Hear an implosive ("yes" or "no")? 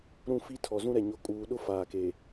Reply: yes